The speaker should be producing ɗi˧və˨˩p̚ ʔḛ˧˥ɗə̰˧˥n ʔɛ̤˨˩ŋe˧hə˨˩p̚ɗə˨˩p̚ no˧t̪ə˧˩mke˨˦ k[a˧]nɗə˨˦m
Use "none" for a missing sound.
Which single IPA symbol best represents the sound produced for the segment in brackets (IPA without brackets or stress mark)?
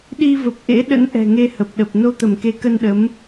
ə˧